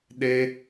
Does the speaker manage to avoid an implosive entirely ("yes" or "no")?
no